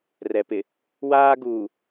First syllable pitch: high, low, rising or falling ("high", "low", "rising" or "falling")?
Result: low